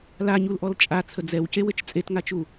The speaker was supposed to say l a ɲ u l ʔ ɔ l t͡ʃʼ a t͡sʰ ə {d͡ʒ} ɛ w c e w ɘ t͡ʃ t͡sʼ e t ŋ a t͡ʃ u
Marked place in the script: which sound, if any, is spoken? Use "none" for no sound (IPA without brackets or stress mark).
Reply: d͡z